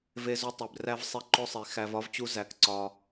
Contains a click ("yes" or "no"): yes